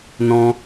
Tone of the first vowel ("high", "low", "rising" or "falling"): high